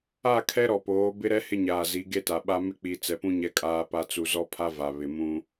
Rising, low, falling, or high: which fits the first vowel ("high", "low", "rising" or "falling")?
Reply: falling